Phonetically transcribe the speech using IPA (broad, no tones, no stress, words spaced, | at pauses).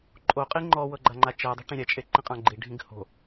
ǃʼoqʼi ŋ͡ǃɔwɤɡ͡ǃaŋ͡ǃa t͡ʃɛdˤo̤ ʈĩɾʲɛt͡ʃʼe ǃĩqʼãɡ͡ǃi ɖʱĩɡho̤